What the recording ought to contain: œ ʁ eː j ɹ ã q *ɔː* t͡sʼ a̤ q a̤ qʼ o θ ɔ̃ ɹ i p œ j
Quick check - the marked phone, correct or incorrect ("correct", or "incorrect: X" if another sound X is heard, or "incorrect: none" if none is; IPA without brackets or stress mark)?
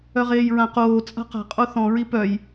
incorrect: oː